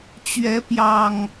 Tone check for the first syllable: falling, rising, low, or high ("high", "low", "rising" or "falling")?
rising